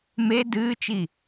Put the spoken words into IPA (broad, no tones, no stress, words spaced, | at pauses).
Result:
me dɨːt͡ʃi